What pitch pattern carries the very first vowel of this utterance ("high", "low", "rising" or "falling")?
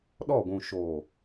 falling